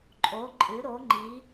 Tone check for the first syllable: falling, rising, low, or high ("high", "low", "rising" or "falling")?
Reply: rising